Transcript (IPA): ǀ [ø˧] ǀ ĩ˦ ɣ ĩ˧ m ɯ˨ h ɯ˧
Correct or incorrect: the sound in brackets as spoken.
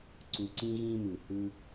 incorrect: u˧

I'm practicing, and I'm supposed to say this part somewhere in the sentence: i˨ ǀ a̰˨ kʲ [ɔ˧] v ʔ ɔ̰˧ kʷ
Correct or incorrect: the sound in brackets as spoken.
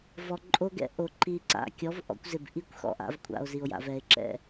incorrect: ɔ˨˦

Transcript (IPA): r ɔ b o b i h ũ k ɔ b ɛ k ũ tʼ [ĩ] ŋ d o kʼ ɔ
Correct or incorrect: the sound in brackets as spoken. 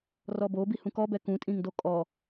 correct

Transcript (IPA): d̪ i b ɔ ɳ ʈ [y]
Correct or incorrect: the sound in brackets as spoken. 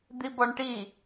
incorrect: i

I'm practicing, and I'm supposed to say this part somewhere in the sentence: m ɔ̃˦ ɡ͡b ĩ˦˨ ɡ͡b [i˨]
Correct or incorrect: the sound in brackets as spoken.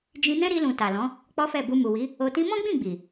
correct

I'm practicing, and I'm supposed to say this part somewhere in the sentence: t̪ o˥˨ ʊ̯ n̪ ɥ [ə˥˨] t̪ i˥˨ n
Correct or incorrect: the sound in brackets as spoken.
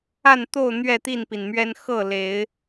incorrect: ɛ˥˨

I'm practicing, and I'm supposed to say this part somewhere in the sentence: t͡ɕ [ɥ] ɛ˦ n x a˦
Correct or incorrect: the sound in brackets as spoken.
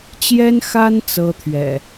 incorrect: j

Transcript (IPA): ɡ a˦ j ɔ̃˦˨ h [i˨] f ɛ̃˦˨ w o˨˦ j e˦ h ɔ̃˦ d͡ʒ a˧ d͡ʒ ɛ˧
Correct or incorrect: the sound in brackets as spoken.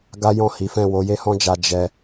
incorrect: i˨˦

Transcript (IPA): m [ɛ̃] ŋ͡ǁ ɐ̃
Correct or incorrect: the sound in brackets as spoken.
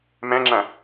correct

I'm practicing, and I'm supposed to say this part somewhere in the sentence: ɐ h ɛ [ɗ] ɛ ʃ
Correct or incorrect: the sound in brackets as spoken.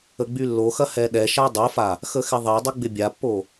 correct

